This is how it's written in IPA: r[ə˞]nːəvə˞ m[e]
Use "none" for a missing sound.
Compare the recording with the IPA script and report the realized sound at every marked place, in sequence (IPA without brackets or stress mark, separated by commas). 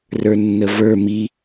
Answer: ə˞, i